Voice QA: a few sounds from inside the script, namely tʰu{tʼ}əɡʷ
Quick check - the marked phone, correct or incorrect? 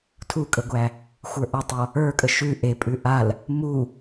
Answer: incorrect